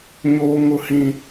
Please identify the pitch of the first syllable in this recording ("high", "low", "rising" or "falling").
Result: low